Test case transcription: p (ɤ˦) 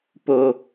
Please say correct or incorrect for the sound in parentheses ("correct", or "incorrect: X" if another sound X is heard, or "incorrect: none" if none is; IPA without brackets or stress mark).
incorrect: o˦